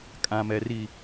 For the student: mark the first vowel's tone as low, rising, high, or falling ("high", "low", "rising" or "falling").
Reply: low